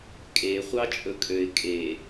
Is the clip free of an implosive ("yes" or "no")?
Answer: yes